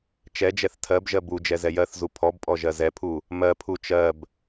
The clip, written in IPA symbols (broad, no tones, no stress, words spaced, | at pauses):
t͡ʃɛd͡ʒɛθ tʰɜbʒɜ bu d͡ʒɛzɛjɜθzu pʰɔbpʼɔ ʒɜzɛpʰu | mɜpʰu t͡ʃɜb